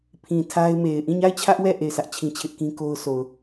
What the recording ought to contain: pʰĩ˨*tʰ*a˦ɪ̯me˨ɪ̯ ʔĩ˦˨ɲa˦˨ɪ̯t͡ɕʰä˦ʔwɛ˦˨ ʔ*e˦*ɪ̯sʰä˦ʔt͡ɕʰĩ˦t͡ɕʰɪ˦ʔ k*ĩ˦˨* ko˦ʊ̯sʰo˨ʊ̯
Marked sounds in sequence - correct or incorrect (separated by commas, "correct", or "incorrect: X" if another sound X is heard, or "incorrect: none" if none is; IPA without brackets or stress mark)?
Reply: correct, incorrect: e˦˨, incorrect: ĩ˦